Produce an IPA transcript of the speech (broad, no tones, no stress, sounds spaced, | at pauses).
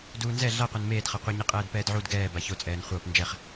d uː n z ɛ ɮ a qʷ a n m eː d χ ʌ qʷ ɯ ɲ i qʼ ɛː d p ɛː d ʕ u d ɡ ɛː b a ç o t͡sʼ ɛː n χʷ ʌː p n d͡ʒ ɛ χ